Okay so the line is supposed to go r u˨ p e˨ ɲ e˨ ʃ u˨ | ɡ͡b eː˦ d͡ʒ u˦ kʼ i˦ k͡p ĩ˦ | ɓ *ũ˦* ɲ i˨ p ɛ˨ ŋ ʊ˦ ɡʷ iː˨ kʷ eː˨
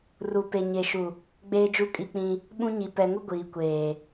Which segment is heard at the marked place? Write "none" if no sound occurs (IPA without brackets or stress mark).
ũ˦